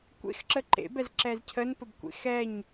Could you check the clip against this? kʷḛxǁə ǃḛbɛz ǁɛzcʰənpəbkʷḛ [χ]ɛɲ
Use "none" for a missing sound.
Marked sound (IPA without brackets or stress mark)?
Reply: x